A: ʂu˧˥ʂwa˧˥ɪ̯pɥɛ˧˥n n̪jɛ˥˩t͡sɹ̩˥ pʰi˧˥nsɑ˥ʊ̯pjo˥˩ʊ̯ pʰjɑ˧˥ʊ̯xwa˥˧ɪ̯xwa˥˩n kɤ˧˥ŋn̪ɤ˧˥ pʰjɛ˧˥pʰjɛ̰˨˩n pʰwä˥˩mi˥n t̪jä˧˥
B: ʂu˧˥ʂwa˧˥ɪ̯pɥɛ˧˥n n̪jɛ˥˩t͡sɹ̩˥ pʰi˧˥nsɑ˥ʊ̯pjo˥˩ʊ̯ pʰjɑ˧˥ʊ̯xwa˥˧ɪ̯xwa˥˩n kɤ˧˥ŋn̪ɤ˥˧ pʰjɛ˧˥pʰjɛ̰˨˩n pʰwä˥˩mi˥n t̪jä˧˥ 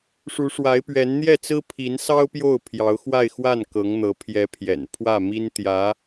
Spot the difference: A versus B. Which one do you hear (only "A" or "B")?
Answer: A